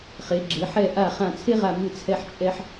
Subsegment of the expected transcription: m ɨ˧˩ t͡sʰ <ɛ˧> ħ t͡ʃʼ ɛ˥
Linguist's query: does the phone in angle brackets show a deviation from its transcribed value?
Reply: no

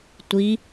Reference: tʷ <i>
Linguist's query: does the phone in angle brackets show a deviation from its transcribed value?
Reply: no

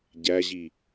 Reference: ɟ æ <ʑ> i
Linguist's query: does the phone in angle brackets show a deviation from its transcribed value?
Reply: no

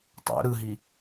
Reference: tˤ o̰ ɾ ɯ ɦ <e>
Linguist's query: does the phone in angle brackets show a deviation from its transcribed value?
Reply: yes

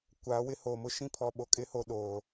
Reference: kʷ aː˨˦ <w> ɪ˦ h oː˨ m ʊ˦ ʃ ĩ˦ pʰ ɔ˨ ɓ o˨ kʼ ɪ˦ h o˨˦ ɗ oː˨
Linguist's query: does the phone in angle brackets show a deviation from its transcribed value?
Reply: no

